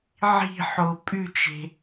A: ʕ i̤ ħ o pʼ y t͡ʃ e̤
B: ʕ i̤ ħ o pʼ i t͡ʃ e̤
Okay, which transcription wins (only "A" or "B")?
A